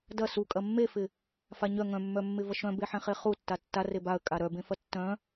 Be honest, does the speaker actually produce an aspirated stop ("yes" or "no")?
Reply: no